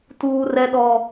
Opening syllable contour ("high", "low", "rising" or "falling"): high